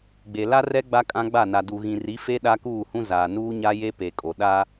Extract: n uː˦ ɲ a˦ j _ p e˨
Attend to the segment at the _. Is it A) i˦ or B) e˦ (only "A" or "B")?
B